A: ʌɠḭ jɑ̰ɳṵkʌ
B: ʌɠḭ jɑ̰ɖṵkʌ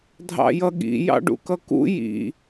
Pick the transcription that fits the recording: B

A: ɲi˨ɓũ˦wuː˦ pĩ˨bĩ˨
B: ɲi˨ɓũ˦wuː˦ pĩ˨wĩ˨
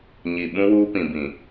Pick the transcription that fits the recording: A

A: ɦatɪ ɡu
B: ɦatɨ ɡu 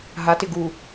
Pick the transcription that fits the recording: A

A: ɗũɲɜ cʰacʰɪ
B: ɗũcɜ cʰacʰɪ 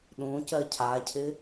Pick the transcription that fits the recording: B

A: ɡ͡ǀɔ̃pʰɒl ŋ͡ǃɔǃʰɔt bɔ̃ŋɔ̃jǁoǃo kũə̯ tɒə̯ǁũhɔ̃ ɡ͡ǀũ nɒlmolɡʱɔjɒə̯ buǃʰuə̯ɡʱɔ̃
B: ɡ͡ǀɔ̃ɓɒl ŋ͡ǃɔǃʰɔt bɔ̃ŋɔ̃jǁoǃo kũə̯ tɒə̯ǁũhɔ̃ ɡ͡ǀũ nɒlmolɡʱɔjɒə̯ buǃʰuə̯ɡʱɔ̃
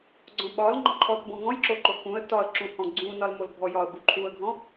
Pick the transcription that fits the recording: B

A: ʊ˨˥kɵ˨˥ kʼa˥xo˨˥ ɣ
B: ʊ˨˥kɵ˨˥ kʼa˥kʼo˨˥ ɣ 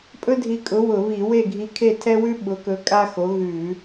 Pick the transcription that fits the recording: A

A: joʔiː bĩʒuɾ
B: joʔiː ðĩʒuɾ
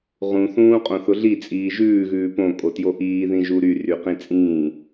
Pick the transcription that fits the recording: B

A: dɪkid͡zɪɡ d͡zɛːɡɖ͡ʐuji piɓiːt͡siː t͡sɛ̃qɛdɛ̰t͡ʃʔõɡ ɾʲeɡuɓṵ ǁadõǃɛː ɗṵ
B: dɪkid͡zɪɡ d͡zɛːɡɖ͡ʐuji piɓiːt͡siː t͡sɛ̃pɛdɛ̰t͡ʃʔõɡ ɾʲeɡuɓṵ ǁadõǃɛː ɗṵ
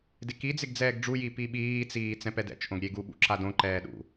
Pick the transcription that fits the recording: B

